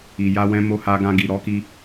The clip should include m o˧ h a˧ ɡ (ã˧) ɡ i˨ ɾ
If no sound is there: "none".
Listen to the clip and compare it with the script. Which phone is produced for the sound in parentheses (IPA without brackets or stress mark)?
ã˧